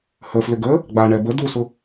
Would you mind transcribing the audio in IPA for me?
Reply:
h ə f l ʏ ɡ ə | ɡ͡b a ɳ ɛ b ə d u s ʊ

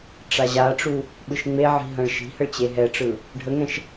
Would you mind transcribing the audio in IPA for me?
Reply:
ʈ͡ʂ a ʑ a ʈ͡ʂ u | ɓ ɯ ʃ ŋ͡m e ʕ i̤ ɦ ɐ̃ ɭ ʃ i̤ h ə ɭ t͡ɕ e ɦ ɛ ʈ͡ʂ ɯ | ɖʱ ə ŋ ɛ̃ ʃ

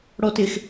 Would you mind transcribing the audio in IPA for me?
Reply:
ɽ ɔ t ɪ x

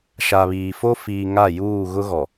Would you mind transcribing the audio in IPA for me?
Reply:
ʃ a˨ β iː˨ f o˦ f iː˨ ŋ a˦˨ j uː˦˨ ɣ ʊ˦ ɣ ɔ˨

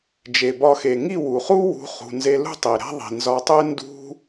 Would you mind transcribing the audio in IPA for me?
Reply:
d͡ʒ e˨ b ɒ˧ x e˨ ŋ i˦˨ w u˨ χ u˦ w ṳ˧ χ ṳ˨ n z e˧ l ṳ˦ tˤ i˨ ɾ æ̤˦ ðˤ i̤˨ n z ɒ˧ tˤ e˦ n d ṳ˦

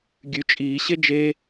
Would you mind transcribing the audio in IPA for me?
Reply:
ɡʲ ʉ t͡ʃʼ iː ɕ e d͡ʒ e

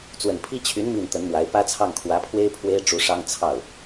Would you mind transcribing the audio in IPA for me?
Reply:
t͡s w ə˨˩ n pʰ i˥ t͡ɕʰ y˧˥ n m i˥˩ n t̪ ə˧˥ n m w a˧˥ ɪ̯ p ä˥ t͡sʰ ɑ˥˩ ŋ kʰ w ä˧˥ pʰ w e˥ ɪ̯ pʰ w e˥ ɪ̯ ʈ͡ʂ u˧˥ ʂ ɑ˥ ŋ t͡sʰ ɑ˥˩ ʊ̯

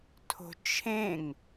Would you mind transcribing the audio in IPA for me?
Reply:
tʰ o̤ t͡ʃʰ ẽ ŋ

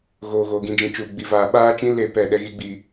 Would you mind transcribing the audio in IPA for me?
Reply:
ɣ oː˨ ɣ oː˨ ɡ ĩ˨ d͡ʒ ĩ˨ t͡ʃ uː˨ ɡ͡b i˨ v aː˨ ɓ aː˦ t͡ʃ ĩ˦ l e˦˨ p ɛ˦˨ ɗ ɛ˦ ɣ i˦ ɡ͡b i˦

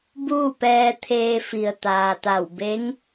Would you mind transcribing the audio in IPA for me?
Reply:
b uː˥˨ p ɛː˧ t̪ʰ eː˧ f i˩ ə̯ t̪ aː˩ t̪ a˧˩ w b e˧˥ ŋ

